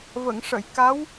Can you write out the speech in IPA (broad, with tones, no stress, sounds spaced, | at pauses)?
v ə˨˩˨ ŋ ʂ ə˨˩˨ j k a˧˥ w